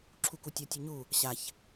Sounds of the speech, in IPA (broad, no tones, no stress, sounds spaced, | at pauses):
ǁʰ u k u tʲ ʌ tʲ u ɲ u | ɕ a ç